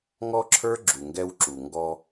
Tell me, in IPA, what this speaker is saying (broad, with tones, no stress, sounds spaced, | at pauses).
ŋ ɔ˦ ǁʰ ə˞˦ ɡ͡ǁ u˨ ŋ ɡ ɛ˧ w ǁ u˨ ŋ ɡ ɔ˧